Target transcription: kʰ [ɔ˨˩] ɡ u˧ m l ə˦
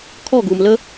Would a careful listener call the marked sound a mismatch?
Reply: yes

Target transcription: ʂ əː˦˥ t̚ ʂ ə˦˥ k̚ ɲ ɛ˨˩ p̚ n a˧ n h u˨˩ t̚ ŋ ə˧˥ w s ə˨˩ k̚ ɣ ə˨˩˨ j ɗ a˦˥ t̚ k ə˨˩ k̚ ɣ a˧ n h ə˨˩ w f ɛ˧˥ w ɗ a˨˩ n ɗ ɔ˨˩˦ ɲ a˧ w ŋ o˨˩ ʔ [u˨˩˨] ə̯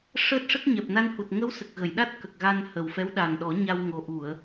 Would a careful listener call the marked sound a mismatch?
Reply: no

